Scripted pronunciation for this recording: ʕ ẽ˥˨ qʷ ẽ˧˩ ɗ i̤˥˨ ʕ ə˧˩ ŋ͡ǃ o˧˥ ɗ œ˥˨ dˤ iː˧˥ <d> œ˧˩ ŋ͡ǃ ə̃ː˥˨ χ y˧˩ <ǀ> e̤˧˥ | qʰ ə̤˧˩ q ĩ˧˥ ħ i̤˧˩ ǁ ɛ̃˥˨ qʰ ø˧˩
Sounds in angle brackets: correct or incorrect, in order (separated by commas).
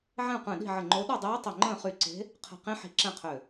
incorrect, correct